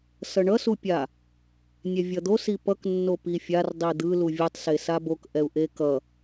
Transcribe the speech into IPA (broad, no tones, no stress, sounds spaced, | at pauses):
s ʌ ɳ ʌ s u pʲ a | nʲ ɛ vʲ ʌ d̪ o s i p ʌ k nː o p i fʲ a r dˤ i d̪ ɯ l u vʲ ɯ tˤ s e s a b o k ʔ ɛ u̯ ʔ e k ʌ